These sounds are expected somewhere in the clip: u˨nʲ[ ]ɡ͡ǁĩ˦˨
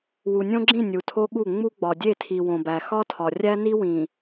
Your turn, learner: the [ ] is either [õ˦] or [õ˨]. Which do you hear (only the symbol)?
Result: õ˦